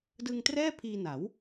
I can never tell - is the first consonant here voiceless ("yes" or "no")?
no